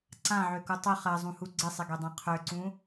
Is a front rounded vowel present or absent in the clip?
present